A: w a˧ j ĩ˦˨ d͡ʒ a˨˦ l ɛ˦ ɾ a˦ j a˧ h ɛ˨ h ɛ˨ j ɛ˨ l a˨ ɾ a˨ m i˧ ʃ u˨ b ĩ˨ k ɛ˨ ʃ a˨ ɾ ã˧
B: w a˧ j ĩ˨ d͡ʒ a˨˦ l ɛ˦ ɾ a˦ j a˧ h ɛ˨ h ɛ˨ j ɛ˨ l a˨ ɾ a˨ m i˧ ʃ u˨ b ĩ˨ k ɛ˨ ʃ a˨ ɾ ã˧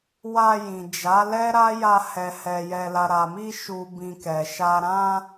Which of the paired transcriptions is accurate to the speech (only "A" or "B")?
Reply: B